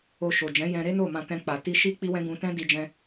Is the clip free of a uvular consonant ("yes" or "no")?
yes